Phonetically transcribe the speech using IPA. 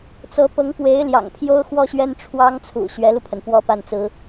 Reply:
t͡sɤ˧˥pɤ˧˥ŋpwe˧˥ɪ̯ ljɑ̰˨˩ŋpʰjo˥ʊ̯ xwɔ˥ɕɥɛ˥nʈ͡ʂʰwɑ˥ŋt͡sʰṵ˨˩ ɕɥɛ˧˥lu˧pʰə˩n pwɔ˥pa˥˩nt͡sɹ̩˥

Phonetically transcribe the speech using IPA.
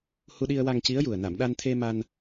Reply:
hu˧ɗi˧ə̯wa˧ŋ ci˧˥ə̯ju˨˩ə̯ na˨˩˨mɗa˧n t̪ʰe˧ ma˧n

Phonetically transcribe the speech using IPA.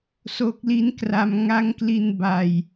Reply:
so˦˥k̚li˦˥n kra˧m ŋa˦˥ŋkli˧n ba˧j

